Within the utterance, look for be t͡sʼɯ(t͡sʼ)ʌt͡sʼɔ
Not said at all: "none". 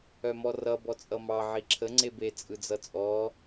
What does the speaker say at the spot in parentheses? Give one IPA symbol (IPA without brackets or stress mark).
d͡z